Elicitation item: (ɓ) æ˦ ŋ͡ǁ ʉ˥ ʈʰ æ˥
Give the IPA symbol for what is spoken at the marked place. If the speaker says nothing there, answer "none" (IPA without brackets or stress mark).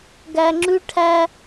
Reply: ɡ